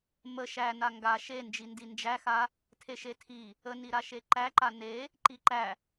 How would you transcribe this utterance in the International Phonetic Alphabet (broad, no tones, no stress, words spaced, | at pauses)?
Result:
mə ʃæ naŋɡa ʃe nd͡ʒindind͡ʒæxa | tʰeʃetʰi | əniɾaʃe ǃæǃa ne | ǃiǃæ